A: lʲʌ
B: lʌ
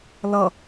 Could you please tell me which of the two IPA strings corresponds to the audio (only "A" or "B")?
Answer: B